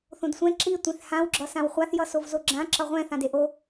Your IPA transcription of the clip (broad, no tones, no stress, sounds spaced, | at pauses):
θ õ d sʷ ɛ̃ ǁ i tʷ ẽ θ h ã w ɡ͡ǁ ʌ s ã w χʷ a θ j ʌ s o v z o ɡ͡ǁ ã ǁ ʌ ʁʷ ɛ̃ θ ã d e ʔ o